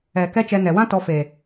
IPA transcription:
ɛ˨ k ɛ˦ t͡ʃ ɛ˧ n ɛ˨ w ã˦ t ɔ˧ f e˨

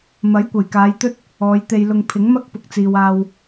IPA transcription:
m ɐ˨˥ j kʷ ɐ˨˩ j k aː˨˧ j t̪ ɵ˥ t̚ | ɔː˨˧ j t̪ e˧ j l ʊ˧ ŋ pʰ ɪ˨˥ ŋ m ɐ˥ k̚ p ʊ˨ k̚ t͡s iː˨ w aː˧ w

